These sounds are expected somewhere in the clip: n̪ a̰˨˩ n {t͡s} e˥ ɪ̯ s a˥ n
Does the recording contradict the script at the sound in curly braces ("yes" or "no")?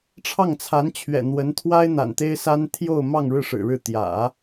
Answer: yes